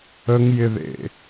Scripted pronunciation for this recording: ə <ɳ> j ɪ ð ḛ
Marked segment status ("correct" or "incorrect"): incorrect